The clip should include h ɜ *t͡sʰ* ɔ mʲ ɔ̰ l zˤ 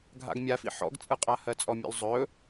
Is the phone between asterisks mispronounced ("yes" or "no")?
yes